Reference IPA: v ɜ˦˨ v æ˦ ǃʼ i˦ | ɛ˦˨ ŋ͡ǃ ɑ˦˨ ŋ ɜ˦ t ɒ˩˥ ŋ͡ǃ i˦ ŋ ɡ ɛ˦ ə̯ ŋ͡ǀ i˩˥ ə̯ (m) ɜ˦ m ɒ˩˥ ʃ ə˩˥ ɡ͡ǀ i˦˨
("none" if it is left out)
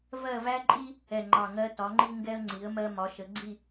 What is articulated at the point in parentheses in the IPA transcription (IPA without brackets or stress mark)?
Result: m